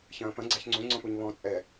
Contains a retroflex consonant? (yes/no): no